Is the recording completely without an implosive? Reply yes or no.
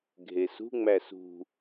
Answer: yes